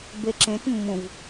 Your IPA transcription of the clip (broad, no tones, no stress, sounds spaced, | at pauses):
b e ǁ ẽ t mː ũ v